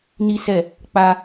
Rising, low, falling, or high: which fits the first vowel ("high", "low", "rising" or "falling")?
high